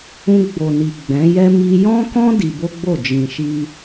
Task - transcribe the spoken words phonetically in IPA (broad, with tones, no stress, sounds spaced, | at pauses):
ũ˧ ɡ͡b o˨ n i˨ ɡ͡b ɛ̃˨˦ j ɛ˦ m i˦ j ɔ̃˦ k ɔ̃˦ d i˧ b o˦ ɡ͡b o˦˨ d͡ʒ ĩ˨ ʃ i˧